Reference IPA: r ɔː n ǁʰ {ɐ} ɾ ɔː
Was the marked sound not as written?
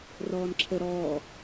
yes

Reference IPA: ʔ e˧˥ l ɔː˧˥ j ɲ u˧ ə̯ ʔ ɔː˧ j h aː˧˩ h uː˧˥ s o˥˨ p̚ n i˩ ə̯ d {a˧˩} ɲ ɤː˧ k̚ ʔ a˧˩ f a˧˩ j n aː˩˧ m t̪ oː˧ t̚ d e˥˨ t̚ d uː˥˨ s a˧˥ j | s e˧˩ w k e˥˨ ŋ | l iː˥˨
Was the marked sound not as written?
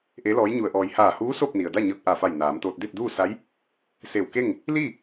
yes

